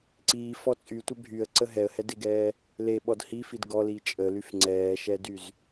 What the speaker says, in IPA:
ǀ iː f ɔ t͡sʼ y tʷ ɛ bʱ y ə̯ ǀ ə ɦ ɛ ə̯ h ɛ d e ɡ ɛː | l e ɓ ɔ d h i f i d ɡ ɔ l i t͡ʃʼ ə l y f ŋ͡ǀ ɛː ʃ ɛ d y z

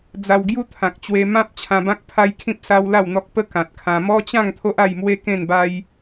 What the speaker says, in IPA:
d͡z a˧ w ɡ j u˦ t̪ʰ ã˨ k̚ t͡ɕ w e˧ m ã˦ p̚ t͡ɕʰ ã˧ b ã˦ k̚ pʰ a˦ j kʰ ĩ˦ p̚ s a˦ w l a˥˧ w n̪ ɔ˦ k̚ p ə˦ k ã˨ t̚ kʰ ã˧ m ɔ˦ t͡ɕ ã˥˧ ŋ t̪ʰ o˦ ʔ a˥˧ j m w e˦ k ẽ˥˧ n b a˦ j

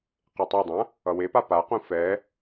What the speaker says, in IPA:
q e tˤ e dˤ ã | ʌ w e p a p a q ũ f ɛ

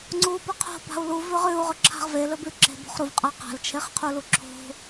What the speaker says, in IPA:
ŋ͡ǀ u b ɐ qʰ o̤ b a̤ u̯ l u v ʉ ʁ ʉ u̯ ʁ ɵ ǁʰ a̤ ʁ v e l ɵ b ʉ ǁ e̤ b o̤ χ ɾ u v qʼ a q a̤ l t͡ʃʰ e χ qʰ u l u ǁʰ o̤

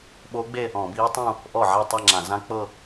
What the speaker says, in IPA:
ɓ o˦˥ ɡ͡b e˥˧ | ɔ̃˧˩˧ b iː˦˥ tˤ ũ˥˧ | ʔ ɔ˥˩ ʕ a˥˧ tˤ a˥˧ ŋ͡ǁ ã˧˩˧ z ã˦˥ k͡p ɤ˥˧

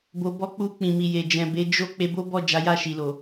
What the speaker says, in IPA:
b o˨ b ɔ˧ k͡p u˧ k͡p ĩ˨ m i˨ j e˨ d͡ʒ ɛ̃˨ b e˨˦ d͡ʒ o˦ k͡p e˧ b o˦ b ɔ˦˨ d͡ʒ a˨˦ j a˦˨ ʃ i˨ l o˨

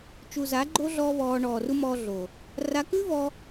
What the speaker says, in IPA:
t͡ʃ u˨ z a˨˦ ɡ͡ǃ o˦ ɮ ɔː˦ β ɔː˧ ɳ ɔː˨ r u˦ m ɔː˧ ɮ o˨ | r a˧ k ʉ˦ v ɔ˧

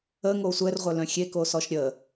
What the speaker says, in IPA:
ə ŋ o sʷ ɛ r ʁʷ œ l œ̃ xʲ e k o s ɔ ʃ ɾʲ ə

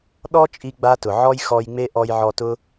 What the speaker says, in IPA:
ɗ ɔ˦ t͡ʃʼ i˦ ɡ͡b a˦ t ʊ˨ ʕ ɔ˦ j x ɔ˧ j ŋ͡m e˦ ʔ ɔ˧ j ʕ ɔ˧ t ʊ˦

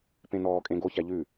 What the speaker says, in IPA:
p ẽ n ɔː kʼ ẽ ɡ o ç æ ʎ ʉ

